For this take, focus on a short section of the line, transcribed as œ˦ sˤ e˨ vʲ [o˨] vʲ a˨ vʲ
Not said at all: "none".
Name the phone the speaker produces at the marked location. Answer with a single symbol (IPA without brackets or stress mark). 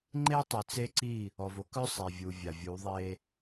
u˨